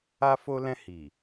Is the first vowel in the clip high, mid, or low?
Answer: low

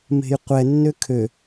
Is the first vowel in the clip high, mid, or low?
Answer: mid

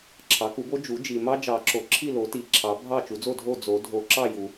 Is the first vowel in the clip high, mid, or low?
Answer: low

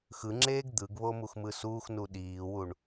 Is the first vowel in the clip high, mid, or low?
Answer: high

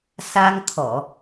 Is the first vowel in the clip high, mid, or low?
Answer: low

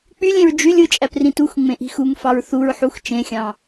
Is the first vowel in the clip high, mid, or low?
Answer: high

